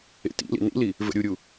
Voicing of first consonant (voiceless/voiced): voiceless